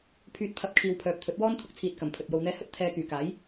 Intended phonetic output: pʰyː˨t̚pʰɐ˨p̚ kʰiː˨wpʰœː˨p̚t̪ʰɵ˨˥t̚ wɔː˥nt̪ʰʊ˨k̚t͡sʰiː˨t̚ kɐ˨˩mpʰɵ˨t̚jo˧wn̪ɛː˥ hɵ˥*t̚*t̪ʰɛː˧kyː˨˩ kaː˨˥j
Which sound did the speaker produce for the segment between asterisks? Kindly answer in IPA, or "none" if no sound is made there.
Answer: t̚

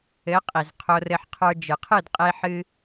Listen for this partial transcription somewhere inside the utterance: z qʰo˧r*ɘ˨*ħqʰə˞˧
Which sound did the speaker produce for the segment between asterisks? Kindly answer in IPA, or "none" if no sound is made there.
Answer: ɘ˧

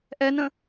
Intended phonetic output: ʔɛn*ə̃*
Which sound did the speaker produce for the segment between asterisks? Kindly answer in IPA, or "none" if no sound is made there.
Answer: ə̃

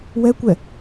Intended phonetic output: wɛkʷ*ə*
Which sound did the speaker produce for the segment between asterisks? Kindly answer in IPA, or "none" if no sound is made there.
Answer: ɛ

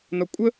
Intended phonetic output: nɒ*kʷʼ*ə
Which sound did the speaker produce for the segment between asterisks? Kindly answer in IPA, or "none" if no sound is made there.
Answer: kʷʼ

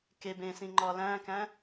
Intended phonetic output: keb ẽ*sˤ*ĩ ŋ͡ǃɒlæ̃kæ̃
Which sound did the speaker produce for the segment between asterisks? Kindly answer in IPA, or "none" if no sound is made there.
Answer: s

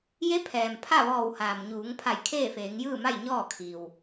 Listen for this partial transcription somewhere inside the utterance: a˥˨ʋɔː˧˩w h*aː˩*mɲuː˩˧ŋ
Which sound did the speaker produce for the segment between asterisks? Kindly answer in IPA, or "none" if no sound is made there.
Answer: aː˩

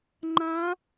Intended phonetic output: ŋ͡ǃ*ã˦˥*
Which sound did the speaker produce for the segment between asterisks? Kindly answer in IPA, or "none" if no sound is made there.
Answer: ã˦˥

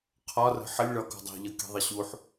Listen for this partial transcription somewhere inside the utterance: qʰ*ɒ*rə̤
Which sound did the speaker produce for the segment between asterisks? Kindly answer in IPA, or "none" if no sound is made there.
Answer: ɒ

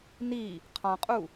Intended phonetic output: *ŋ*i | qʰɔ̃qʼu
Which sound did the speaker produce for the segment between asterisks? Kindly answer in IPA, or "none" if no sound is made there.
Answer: n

